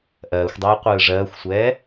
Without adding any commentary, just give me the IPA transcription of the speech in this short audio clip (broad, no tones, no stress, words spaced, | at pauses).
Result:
ʔɜːxʷdˤɛː qʷɯːʐɜːxʷsʷɛː